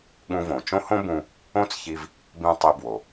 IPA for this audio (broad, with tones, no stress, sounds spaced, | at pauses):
ɠ ũ˧ v õ˩ t͡ʃ õ˥ h õ˥ b ũ˧ | õ˥ t͡s ç i˧ v | b ĩ˧ tˤ i˧ b w o˩